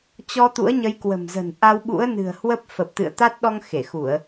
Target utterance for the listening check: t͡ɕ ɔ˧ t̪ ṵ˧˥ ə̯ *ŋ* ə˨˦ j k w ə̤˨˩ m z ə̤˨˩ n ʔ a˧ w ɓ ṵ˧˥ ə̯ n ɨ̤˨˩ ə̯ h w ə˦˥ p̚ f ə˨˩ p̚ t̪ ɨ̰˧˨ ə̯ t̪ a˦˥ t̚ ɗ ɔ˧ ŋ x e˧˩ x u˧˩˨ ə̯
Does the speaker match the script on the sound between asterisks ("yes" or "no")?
no